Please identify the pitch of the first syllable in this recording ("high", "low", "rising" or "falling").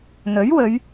rising